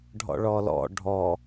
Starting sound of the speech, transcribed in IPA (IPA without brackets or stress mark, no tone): ɖʱ